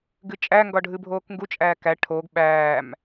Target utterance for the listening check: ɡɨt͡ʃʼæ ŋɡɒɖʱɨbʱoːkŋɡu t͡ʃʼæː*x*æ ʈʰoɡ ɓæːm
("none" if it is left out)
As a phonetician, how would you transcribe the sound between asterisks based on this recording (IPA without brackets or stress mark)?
k